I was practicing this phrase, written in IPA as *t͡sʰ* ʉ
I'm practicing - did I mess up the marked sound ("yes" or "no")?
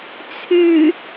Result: no